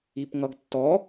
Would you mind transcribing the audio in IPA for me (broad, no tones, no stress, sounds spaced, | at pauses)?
i p ŋ ʌ ɡ tː ɔ